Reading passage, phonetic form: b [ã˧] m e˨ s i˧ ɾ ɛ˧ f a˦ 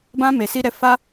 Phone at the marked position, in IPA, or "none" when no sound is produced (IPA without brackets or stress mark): ã˧